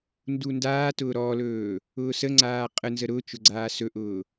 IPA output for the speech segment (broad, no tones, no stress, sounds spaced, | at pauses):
n d u n d aː t ʊː ɾ ɔ l ɵː | ʊː s ə ŋ͡ǀ aː qʼ ə n z ə ɾ ʊ t͡ʃ ʊ ɡ͡ǀ aː s ɵ ʔ ʊː